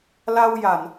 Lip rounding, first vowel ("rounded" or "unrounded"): unrounded